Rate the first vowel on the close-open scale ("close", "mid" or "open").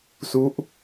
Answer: close